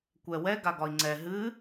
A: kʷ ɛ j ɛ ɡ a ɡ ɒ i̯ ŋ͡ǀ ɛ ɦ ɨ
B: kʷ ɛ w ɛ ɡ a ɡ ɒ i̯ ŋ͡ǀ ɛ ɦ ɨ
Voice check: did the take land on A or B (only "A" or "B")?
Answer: B